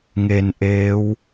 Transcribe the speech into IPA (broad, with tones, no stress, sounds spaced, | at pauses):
ŋ e˧ n ʔ eː˦˥ w